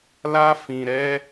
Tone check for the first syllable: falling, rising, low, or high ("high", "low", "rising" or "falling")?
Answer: high